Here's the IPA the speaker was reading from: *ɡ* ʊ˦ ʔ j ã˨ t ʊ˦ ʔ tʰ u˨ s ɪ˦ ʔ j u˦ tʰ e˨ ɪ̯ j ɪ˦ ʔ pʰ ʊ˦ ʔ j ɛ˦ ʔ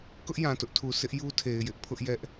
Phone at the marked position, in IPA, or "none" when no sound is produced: k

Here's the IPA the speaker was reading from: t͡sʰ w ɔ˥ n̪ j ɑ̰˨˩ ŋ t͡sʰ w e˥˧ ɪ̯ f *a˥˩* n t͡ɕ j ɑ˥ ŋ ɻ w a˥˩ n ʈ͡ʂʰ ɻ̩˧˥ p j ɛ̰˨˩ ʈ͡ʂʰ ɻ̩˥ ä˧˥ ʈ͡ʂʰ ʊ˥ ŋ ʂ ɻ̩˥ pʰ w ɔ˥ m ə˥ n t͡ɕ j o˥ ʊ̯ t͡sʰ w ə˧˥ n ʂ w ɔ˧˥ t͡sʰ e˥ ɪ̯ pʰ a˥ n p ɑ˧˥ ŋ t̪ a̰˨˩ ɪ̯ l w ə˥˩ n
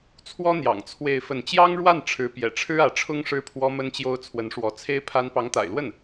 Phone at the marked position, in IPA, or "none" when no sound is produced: ə˥˩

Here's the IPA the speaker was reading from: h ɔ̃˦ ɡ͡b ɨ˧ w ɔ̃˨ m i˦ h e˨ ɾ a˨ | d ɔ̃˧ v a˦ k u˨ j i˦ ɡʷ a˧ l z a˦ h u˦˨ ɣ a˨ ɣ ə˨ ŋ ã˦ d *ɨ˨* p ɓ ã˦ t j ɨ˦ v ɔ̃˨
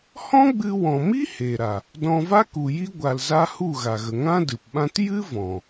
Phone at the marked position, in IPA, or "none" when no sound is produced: ɨ˨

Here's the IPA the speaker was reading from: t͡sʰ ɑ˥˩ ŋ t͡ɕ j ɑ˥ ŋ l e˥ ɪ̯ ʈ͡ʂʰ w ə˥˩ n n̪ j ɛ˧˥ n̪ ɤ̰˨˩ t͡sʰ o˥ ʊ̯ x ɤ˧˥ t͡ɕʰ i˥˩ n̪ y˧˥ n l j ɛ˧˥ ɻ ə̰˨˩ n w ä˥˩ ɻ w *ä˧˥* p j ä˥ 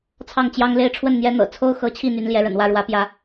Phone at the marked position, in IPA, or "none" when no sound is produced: ä˧˥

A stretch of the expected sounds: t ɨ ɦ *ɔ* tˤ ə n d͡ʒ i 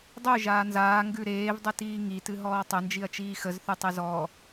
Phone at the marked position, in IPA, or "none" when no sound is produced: ɔː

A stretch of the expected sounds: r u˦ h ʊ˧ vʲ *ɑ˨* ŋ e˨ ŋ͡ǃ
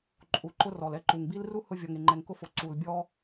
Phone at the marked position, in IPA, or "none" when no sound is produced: ɔ˨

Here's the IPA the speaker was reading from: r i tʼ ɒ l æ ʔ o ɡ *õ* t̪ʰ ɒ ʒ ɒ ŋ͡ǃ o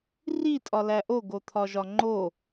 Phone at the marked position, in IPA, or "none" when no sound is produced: o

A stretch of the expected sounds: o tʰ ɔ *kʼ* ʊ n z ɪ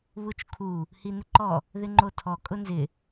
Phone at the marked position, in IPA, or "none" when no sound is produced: kʼ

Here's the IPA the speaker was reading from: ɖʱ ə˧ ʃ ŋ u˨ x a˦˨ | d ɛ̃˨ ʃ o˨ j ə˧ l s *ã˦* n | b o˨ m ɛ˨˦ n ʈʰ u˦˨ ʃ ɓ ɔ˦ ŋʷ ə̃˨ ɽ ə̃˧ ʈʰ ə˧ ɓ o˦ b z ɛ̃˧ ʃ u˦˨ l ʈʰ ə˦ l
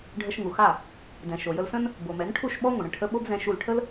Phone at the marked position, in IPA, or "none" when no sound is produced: ə̃˦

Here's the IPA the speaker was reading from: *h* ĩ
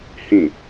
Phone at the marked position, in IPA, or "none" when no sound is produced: h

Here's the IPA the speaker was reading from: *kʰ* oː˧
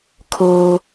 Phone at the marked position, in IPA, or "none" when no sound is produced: kʰ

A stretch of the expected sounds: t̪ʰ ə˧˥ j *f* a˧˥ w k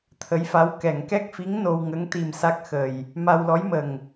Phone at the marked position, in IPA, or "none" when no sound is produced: f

